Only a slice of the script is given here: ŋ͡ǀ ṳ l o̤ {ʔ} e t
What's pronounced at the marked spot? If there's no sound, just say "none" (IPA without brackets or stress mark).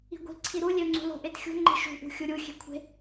ʔ